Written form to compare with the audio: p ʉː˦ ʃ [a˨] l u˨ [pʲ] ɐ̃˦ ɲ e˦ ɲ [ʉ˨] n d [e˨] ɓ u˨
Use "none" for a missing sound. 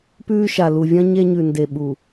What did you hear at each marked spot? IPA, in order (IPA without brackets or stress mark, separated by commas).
a˨, vʲ, ʉ˨, e˨